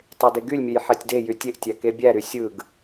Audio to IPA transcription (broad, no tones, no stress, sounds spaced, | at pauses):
tˤ e d e ɡ y lʲ mʲ ø j ħ æ tʲ d e j y tʲ e ʔ tʲ æ k e bʲ æ ɾ y sʲ ɯ ɡ